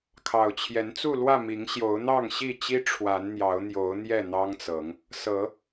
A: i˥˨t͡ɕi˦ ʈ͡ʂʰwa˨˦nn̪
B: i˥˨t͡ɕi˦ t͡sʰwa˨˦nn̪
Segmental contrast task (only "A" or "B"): A